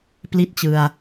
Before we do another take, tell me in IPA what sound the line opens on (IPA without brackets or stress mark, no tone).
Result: p